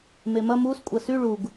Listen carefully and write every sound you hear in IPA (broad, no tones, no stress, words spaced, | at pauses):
memɐ mus kʷʼɐsy ɭuɡ